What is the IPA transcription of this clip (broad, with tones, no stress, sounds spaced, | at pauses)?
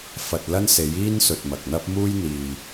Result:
f ɐ˨ t̚ l ɐ˥ n s e˨˥ j iː˥ n s ɵ˨ t̚ m ɐ˨ k̚ n̪ ɐ˥ p̚ m uː˥ j n̪ iː˨